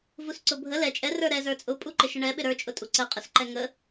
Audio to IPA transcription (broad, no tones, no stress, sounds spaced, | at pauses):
v u s ǀ ʊ bʱ ə l ɛ t͡ʃʼ ɛ r ə˞ ɾ ɛ z ə˞ t͡sʼ ʊ pʼ u ǃ ɪ ʃ ə ɳ ɛ ɓ ɪ ɾ ə˞ t͡ʃʼ ʊ tʼ u ǀ ə qʼ ə s ǃ ɛ ŋ ə